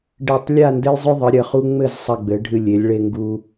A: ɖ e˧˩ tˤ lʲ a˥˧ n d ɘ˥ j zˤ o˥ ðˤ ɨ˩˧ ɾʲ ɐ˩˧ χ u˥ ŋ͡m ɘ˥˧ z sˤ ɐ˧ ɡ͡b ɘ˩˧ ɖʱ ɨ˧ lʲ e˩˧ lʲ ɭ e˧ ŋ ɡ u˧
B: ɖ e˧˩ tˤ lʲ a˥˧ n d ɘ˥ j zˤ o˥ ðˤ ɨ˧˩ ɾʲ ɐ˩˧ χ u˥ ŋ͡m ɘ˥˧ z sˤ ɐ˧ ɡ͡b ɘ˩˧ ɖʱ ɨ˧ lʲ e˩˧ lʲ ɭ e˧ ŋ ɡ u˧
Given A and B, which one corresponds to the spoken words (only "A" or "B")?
A